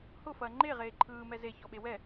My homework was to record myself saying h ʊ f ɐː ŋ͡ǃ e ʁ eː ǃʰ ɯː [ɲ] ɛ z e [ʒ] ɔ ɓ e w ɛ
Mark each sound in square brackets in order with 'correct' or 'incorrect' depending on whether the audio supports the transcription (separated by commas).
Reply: incorrect, incorrect